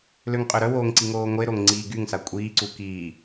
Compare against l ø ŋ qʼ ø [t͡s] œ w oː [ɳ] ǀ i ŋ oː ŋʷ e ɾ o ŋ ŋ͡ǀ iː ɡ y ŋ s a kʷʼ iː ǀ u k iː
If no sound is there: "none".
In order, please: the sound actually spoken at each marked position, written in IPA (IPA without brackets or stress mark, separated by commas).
ɾ, ŋ